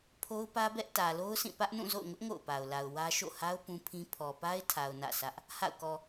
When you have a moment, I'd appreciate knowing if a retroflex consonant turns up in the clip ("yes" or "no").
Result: no